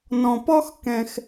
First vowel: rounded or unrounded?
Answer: rounded